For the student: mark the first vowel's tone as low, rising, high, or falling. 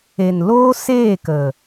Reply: low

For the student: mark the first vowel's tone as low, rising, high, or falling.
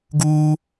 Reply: high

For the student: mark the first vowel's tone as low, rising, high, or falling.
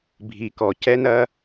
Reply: low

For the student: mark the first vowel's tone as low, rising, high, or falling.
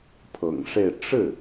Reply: low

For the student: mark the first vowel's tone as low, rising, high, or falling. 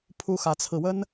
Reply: high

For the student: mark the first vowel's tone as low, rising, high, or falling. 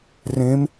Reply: rising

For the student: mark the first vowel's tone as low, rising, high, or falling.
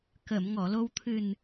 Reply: low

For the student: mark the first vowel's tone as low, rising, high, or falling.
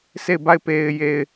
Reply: falling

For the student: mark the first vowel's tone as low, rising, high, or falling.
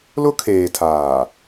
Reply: high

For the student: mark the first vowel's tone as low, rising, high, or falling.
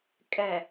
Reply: low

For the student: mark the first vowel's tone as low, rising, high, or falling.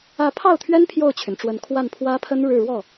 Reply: rising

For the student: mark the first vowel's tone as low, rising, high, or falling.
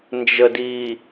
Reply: low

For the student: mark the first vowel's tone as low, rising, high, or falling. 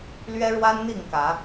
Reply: high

